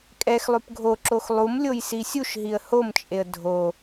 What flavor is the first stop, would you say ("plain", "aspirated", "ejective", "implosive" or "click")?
ejective